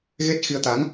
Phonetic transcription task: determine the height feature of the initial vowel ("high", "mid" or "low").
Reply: mid